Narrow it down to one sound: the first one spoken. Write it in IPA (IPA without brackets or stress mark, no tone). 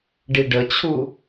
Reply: ɖ